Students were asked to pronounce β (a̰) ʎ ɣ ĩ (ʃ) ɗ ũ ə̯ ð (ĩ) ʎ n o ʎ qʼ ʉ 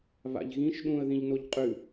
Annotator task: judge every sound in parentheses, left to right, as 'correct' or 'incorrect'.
correct, correct, correct

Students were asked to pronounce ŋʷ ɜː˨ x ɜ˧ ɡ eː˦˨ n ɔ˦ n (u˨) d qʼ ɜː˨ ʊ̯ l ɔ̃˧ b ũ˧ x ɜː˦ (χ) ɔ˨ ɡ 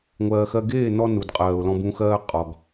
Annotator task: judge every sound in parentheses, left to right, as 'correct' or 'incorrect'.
correct, incorrect: qʼ

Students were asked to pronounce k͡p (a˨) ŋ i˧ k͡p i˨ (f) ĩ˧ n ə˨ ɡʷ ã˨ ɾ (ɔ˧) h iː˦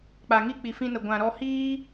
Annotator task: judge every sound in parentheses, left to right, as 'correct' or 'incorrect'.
correct, correct, correct

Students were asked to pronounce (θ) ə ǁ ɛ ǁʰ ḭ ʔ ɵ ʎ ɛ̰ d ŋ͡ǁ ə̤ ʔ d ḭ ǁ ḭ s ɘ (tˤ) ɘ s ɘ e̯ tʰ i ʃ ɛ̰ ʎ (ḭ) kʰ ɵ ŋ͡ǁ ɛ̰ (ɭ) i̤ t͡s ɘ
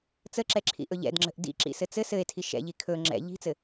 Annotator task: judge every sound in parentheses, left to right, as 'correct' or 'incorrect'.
incorrect: t͡s, incorrect: t͡s, incorrect: i, incorrect: ʎ

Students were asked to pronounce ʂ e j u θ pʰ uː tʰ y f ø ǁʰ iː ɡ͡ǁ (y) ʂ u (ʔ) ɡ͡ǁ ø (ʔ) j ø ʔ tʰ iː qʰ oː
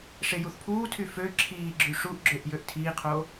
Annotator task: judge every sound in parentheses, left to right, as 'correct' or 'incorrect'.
correct, correct, correct

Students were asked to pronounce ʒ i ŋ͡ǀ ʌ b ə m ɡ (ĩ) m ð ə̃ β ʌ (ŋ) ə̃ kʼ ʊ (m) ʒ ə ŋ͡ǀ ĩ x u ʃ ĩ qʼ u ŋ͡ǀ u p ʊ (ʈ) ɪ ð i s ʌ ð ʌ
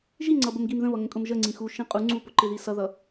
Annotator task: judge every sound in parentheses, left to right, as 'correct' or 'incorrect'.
incorrect: i, correct, correct, incorrect: ǃ

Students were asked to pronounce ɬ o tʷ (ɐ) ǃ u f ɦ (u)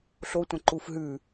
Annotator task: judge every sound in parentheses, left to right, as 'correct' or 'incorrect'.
incorrect: ɐ̃, incorrect: ʉ

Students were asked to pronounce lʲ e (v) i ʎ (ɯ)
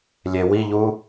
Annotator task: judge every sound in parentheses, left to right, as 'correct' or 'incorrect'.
incorrect: w, incorrect: u

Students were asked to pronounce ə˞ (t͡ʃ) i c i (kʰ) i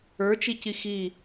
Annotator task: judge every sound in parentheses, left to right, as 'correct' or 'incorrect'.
correct, incorrect: x

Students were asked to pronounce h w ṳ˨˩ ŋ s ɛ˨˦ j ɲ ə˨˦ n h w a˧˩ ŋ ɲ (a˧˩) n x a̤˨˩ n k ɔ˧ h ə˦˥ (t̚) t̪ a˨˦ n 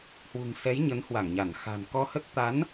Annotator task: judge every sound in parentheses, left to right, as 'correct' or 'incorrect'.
correct, correct

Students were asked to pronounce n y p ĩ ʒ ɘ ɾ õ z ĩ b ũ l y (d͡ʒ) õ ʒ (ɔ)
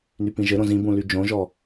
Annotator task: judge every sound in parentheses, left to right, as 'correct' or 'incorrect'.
correct, correct

